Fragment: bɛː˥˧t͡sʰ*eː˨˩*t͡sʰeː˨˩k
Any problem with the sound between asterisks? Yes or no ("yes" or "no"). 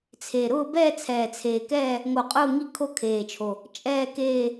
yes